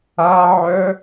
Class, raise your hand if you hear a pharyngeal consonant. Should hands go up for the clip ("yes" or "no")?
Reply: yes